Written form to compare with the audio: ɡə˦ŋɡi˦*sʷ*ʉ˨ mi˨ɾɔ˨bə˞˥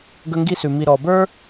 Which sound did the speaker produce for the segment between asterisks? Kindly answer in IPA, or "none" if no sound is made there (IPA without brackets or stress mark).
s